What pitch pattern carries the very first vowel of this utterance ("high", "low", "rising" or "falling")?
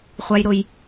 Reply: high